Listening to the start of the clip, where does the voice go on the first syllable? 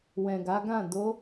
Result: low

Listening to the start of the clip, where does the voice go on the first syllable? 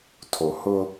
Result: low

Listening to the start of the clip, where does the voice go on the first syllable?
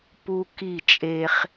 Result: high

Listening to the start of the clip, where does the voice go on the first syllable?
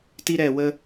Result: high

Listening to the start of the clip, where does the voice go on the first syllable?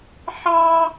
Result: high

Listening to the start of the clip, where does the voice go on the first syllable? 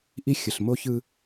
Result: high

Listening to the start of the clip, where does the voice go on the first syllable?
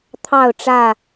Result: falling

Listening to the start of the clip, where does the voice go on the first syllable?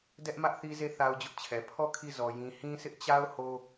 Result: high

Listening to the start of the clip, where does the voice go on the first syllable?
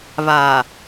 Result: low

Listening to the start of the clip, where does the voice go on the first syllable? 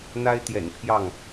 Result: high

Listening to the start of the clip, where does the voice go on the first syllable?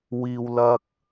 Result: low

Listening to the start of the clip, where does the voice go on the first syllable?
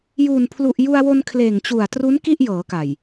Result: low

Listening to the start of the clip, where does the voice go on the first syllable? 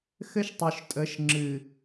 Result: high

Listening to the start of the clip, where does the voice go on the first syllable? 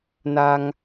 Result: high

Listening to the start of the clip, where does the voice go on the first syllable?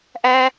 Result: high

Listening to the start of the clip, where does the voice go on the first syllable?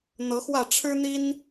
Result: rising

